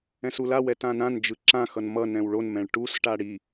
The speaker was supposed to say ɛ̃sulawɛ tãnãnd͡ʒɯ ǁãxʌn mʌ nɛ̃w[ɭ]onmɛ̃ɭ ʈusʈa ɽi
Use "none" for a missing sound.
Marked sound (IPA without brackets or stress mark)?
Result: ɭ